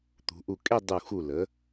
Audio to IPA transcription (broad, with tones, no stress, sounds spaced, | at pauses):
t̪ ṳ˩˧ ʔ u˧˩ kʼ e˥˧ dˤ u˧˩ x u˧˩ l ə˩˧